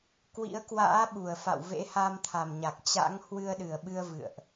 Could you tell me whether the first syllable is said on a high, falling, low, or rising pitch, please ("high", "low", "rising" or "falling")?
rising